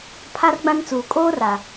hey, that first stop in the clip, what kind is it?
aspirated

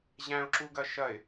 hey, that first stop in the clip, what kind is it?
click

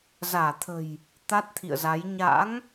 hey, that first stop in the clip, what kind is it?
aspirated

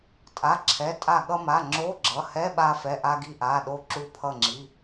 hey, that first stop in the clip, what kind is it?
ejective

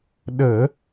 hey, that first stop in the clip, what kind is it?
implosive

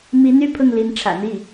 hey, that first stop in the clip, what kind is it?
aspirated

